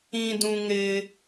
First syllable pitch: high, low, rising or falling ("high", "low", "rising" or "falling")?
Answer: low